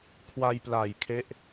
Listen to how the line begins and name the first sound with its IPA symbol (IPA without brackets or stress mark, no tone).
kʰ